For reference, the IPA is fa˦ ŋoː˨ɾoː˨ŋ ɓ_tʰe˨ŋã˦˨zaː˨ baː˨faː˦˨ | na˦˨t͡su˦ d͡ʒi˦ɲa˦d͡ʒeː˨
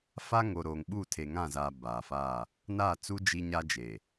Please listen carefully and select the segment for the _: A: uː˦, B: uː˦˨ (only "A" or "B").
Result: B